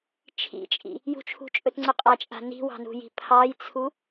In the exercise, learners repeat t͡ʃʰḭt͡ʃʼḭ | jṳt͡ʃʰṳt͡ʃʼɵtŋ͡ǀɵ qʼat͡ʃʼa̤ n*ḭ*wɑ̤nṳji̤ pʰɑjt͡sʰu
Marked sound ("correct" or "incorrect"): incorrect